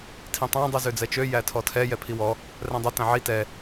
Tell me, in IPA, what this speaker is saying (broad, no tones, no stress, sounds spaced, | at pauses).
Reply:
tʰ ĩ tˤ æ̃ dˤ i z ø d͡z ɛ t͡ʃ ø j æ tʰ ɔ tʰ ɛ j ɛ pʰ i w ɔ | r ɛ̃ dˤ œ t æ̃ ʕ i t ɛ